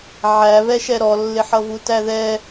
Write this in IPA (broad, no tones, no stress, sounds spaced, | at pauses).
ʕ æ β ɛ ʃ ɛ ɾ ɔ lː ɪ ħ ʌ v u t æ ð ɛ